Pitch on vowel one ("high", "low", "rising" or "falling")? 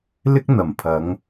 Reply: high